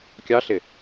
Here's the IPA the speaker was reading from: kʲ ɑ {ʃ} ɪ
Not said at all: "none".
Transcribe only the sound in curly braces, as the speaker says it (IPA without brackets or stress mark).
ɬ